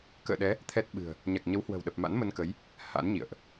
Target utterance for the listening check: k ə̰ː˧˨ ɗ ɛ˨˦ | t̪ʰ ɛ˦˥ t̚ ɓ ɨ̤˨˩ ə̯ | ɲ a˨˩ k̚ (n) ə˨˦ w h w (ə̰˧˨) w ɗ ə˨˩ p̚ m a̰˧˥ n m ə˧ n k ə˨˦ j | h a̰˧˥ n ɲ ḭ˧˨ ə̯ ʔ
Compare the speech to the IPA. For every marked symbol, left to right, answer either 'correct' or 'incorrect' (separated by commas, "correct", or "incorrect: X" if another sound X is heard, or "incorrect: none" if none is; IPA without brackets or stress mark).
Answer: incorrect: ɲ, incorrect: ə̤˨˩